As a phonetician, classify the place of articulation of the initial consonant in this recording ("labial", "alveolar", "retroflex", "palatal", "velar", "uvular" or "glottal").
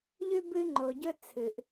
palatal